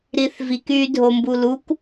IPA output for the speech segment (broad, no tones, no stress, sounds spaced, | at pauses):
ɾ i θ v i k y dʱ o m b u l u k